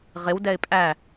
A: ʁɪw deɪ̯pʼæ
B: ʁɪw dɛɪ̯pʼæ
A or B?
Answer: B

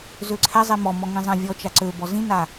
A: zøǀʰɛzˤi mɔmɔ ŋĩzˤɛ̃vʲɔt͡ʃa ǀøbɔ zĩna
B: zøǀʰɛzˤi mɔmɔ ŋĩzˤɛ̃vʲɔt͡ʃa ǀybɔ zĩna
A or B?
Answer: A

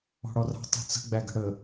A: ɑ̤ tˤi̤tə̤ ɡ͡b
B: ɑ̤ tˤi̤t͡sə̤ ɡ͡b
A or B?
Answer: B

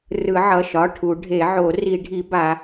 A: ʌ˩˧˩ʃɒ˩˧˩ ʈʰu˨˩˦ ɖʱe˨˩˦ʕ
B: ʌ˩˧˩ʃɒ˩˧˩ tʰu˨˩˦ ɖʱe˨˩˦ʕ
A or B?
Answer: A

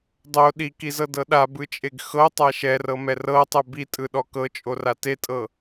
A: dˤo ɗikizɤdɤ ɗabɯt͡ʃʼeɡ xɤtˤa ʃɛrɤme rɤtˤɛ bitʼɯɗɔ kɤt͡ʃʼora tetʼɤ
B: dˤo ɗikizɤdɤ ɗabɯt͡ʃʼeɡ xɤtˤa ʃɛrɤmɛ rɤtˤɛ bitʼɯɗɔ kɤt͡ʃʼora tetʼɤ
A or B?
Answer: B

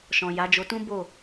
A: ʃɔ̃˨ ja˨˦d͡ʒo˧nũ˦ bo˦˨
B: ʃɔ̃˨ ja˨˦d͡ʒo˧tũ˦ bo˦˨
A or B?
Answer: B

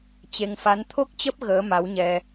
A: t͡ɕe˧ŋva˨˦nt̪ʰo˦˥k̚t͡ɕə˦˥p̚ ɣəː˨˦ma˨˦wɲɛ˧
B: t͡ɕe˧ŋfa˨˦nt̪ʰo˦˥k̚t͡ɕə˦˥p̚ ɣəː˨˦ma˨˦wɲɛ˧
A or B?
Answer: B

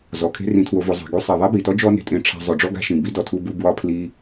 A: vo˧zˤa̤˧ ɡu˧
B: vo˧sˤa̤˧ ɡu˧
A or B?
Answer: A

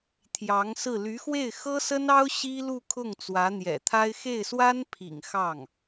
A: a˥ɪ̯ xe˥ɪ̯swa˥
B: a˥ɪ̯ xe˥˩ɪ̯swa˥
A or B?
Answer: B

